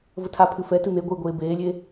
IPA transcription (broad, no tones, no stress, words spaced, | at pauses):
vətʰapʰɨ fɛtɨ n̪eɡʷɨː ɡʷeːbeːlʲe